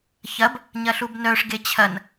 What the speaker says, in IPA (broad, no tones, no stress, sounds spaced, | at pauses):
ç ɐ b | ɲ ɐ ɬ u b n œ ʂ ɡ e t͡ɕʰ ɐ n